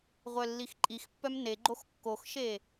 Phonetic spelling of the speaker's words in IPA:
ʁʷ œ lː i x ǃʼ i x pː œ m n e ɡ͡ǃ o x kː o x ʃ e

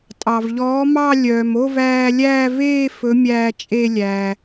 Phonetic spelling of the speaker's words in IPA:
tʼ ɑ˩ v ʎ ɔː˨˥ m ɑ˥˧ lʲ œː˩ m o˥˧ v æː˧ lʲ æː˥˧ v eː˥˧ f ɵ˨˥ mʲ æː˧ t͡ʃʼ e˥˧ lʲ æː˩

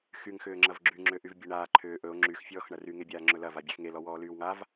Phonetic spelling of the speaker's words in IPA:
x y ŋ x ʏː ŋ͡ǁ ɐ v ɡ͡ǁ y ŋ͡ǁ ʏ ʔ y v bʲ e ɳ aː ǃʰ ʏː ʔ ɵ o̯ ŋ͡ǁ y x fʲ ɔː x ɳ ɐ r y ŋ e bʲ aː ŋ͡ǁ ɵ l ɐ v a bʲ e x ŋ e l ɔ w ɔː l yː w ŋ a v

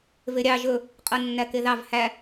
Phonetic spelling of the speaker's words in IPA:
v e ɾʲ ɑ ʒ ɵ | qʼ ɤ nː æ k e ð ɑ v h æ

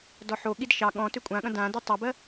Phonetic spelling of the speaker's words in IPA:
d ɔ ħ o ɠ i d ʃ ɑ ɠ ɔ̃ t ʏ kʷʼ ã ɠ ɐ̃ d ã d i tˤ ɑ b ɜ

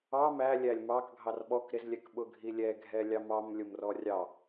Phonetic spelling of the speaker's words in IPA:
ɑ m æ lʲ æ lʲ m ɑ k ɡʱ ɑ r ɓ ɔ k ɾ ɪ z lʲ ɛ k ɓ ʊ ɡʱ i lʲ ɛ ɡʱ ɛ lʲ ɑ m ɑ m lʲ ʊ m r ɔ rʲ ɑ

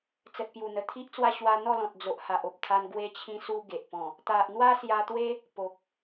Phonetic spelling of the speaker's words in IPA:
t͡s ə˨ t̚ p j u˨˩ n̪ ə˨˩ t̪ʰ i˦ ʔ t͡s w a˥˧ ɕ w a˧ n̪ ɔ˥˧ l ɔ̃˨ t̚ d͡z o˨ ʔ h a˨ ʔ o˨ p̚ t̪ʰ a˧ n ɡ w e˧ t͡ɕʰ ĩ˧ s u˧ ɡ e˨ ʔ p ɔ̃˨˩ | t̪ a˨ ʔ n̪ w a˦ s j a˧ t̪ w e˦ | p o˨ k̚

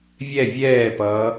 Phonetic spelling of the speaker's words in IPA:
vʲ ɛ vʲ ɛː p ʌː

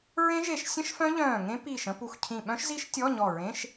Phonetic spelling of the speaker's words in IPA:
ɹ ẽ˦˥ ʒ e˧˩ ʃ sʲ ə̃˦˥ ʃ f œ̃˦˥ ʎ œ̃ː˧˩ ŋ ẽ˦˥ p iː˧˩ ʃ ə̃˧˥˧ p u˧˩ x cʰ ĩ˧˩ ɓ œ̃˦˥ ʃ z i˦˥ ʃ tʲ ɔ˧˥˧ ɲ ɔ˧˩ ɹ ẽ˧˥˧ ʃ

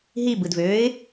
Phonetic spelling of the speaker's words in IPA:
ɦ i b ɯ d v øː ɪ̯

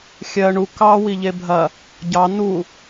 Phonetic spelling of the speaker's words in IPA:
xʲ ɜ ɳ u k ɑ w i ʎ e bʱ ɐ | ɟ ɑ n u

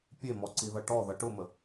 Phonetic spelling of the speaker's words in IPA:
pʲ e m ɔ ǀ i ð ʌ ʈ ɔ ð ʌ ʈ ʊ m ə

